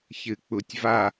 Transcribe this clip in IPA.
ç ɨ k͡p u tʲ v a

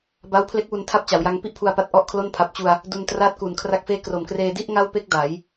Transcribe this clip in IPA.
b a˦˥ w pʰ l e˦˥ k̚ w u˧ n tʰ a˦˥ p̚ t͡ɕ a˩˦ w j a˧ ŋ p i˥˩ ʔ pʰ u˧ a̯ p a˦˥ t̚ ʔ ɔ˥˩ ʔ kʰ l o˥˩ n pʰ a˨˩ p̚ t͡ɕ u˧ a̯ | d u˧ n t r a˦˥ t̚ k u˨˩ n kʰ r a˦˥ k̚ f eː˦˥ k r o˨˩ m k r eː˧ d i˥˩ ʔ ŋ a˥˩ w p e˥˩ k̚ d a˩˦ j

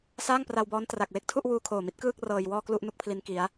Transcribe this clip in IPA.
s aː˥˩ ŋ p r a˧ w b ɔː˦˥ n t r a˨˩ k̚ w e˥˩ k̚ tʰ u˥˩ ʔ w uː˧ kʰ oː˨˩ m i˦˥ t̚ k ɯː˥˩ k̚ r ɤː˧ j w ɔː˥˩ k l u˥˩ ʔ n u˥˩ k̚ pʰ l i˦˥ n k i˦˥ a̯

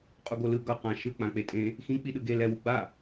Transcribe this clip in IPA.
qʼ u ɡ o l ɯ ɡ ʌ q ã ʃ ɯ k͡p ã k͡p e tʼ ẽ | x ĩ k͡p i ɗ ɯ ɡ e l ɛ w u ɡ͡b a

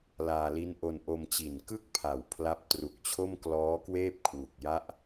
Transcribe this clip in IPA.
l aː˧ l i˦˥ n ʔ o˧ n ʔ o˧ m t͡ɕ i˨˩ n k ɯ˥˩ k̚ pʰ a˨˩ w pʰ l a˦˥ p̚ t r u˨˩ k̚ t͡ɕʰ o˥˩ m k l ɔː˦˥ k w eː˥˩ p̚ kʰ w u˨˩ k̚ j a˦˥ ʔ

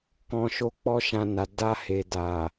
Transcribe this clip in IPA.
k ɔ̃˨ ʃ o˨˦ k͡p ɔ˧ ʃ ã˧ n a˨ d a˧ h e˨ d a˨

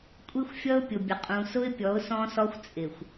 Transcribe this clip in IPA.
kʷʼ i˦ xʷ fʲ ʌ˦ ʊ̯ pʲ ʊ˨ bʲ ə˨ qʼ ũ˨ s ʊ˦ ɪ̯ pʲ ɔ˨˦ ʊ̯ s ɔ̃˦ s ɔ˦ xʷ t͡sʼ ɪ˨ xʷ

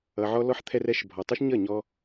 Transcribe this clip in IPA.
ʌ˧ ʕ ɔ˦ l ɔ˦ ħ t̪ʰ ɛ˦ r ɛ˦ ʃ bʱ ɔ˨ tˤ u˦ ʃ ɲ ʌ˦˨ ɲ ɔ˧

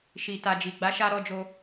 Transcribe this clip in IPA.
ʃ i˨ t a˨ d͡ʒ i˨ ɡ͡b a˨˦ ʃ a˧ ɾ ɔ˧ d͡ʒ o˧

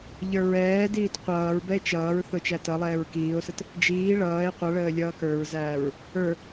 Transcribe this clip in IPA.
ʎ ə˞ ɹ ɛː d iː t qʷ ʌː ɹ b ɛ e̯ t͡ʃ ʌː ɹ θ ʊ t͡ʃ æ t ʌ lˠ ɛː ɹ k iː o̯ s ə t | d͡ʒ iː ɭ ʌː e̯ qʷ ʌ ɭ əː lʲ ʌː k ə˞ ɹ z æː ɹ | ə˞

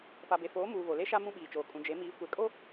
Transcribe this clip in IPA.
p a˨ b e˨ f oː˨˦ m uː˨ β o˨ l e˦ ʃ a˦ m ũ˦ ɓ iː˨ t͡ʃ oː˨ kʼ ũ˨ d͡ʒ e˨˦ m iː˨˦ kʷ e˨ kʼ o˦

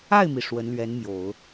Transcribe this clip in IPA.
a˥˩ ɪ̯ m i˩ ʂ w ə˧˥ n l ɥ ɛ˧˥ n m j o˨˩˦ ʊ̯

